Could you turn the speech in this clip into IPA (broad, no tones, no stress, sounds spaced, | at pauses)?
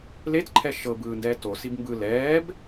l e t ǃʰ ɛ ʃ ɤ b ɯː n d ɛː t o s i b m b ɯ l ɛː b